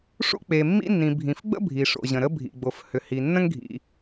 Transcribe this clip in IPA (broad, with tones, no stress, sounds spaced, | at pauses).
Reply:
ʂ ṵ˥ k͡p e˩ mː ḭ˥ nː ĩ˩ bʱ ĩ˩ f ɡ͡b ə̰˥ bʱ i˩ ʂ o̰˩ ʑ ə̃˩ ɾ ə˥ bʱ ḭ˩ ɡ͡b o˩ f h ʏ˩ h i˩ nː ə̃˥ ŋ ɡʱ ḭ˩